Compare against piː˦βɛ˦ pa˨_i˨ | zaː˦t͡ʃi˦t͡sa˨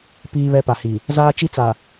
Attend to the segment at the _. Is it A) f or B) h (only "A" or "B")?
B